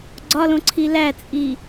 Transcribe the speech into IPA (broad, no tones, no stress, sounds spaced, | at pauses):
ɡ͡ǀ ɒ l õ ǀʰ i l æ t͡sʼ i